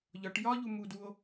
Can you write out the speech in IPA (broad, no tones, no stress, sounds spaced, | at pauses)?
ʎ ɒ ʈ j ɒ ʎ u m u d u o̯